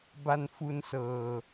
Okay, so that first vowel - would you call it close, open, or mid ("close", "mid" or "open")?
open